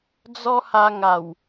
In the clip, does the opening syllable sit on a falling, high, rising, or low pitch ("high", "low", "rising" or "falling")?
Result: high